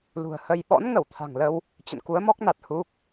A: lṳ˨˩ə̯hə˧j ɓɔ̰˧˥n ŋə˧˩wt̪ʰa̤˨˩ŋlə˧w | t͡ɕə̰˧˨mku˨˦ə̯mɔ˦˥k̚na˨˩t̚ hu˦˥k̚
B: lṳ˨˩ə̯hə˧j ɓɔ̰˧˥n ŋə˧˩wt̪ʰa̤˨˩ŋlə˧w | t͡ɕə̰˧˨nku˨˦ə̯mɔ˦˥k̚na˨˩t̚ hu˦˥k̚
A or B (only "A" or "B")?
B